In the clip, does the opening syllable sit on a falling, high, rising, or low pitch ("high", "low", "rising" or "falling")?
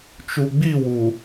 low